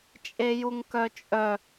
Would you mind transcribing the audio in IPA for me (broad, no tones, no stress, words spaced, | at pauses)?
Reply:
t͡ʃʼejuŋkœt͡ʃʼœ